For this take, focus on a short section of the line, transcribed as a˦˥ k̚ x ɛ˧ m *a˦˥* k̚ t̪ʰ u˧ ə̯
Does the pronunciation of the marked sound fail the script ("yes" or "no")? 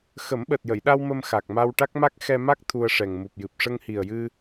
no